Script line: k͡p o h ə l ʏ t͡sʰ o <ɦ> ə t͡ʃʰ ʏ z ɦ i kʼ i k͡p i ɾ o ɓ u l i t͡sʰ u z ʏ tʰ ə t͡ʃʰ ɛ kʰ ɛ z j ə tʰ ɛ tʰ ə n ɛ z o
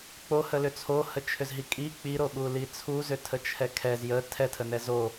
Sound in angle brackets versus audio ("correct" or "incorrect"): incorrect